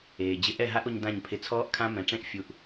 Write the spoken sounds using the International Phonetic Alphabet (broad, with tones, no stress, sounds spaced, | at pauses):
eː˨ d͡ʑ ɪ˧ ʔ ɛ˦˨ ɦ a˦ ʔ o˧ ɲ d ã˦˨ ɲ pʰ ɪ˧ t͡sʰ ɔː˦ ʔ kʰ ã˦ m ɛ̃˨ ʈ͡ʂ ẽ˦ ʔ fʲ u˧ ʔ